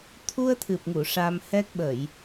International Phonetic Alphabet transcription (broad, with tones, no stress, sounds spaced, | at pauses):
t̪ʰ u˧ ə̯ t̪ʰ ɨ˨˩ p̚ ŋ u˨˩˨ ʂ a˧ m h ɛ˦˥ k̚ ɓ ə˨˩˨ j